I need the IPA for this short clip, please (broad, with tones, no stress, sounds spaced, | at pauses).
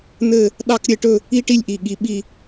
n ɘ˥˧ | ɗ ɑ˥˧ k ɾʲ ɘ˥˧ ʈ ɵ˥˧ | i˥ ʈ i˥˧ lʲ ʔ i˧˩ ɠ i˧ ɓ i˥˧